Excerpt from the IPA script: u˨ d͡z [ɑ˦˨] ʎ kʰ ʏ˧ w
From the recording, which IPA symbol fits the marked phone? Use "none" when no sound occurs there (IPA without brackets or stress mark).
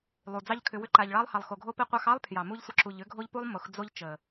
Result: ɑ˦